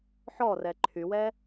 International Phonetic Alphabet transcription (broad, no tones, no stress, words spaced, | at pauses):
ħɔrɛ ǃʰywɛ